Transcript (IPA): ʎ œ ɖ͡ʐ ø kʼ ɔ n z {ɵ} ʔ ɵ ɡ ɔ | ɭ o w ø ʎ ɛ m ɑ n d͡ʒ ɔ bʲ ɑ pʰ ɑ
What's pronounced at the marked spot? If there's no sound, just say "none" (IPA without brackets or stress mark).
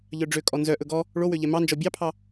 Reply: œ